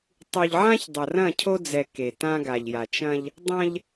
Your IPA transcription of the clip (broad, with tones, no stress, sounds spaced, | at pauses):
tˤ u˨ ʎ ʕ ã˦ ç dˤ ɐ˨ r ɐ̃˦˨ cʰ o˦ d͡z ɛ˨ k e˨ t ã˦ ɡ a˨ ʎ j a˨ t͡ʃ ɐ̃˦ ʎ | dˤ ɐ̃˦ ʎ